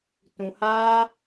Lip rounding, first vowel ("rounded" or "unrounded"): rounded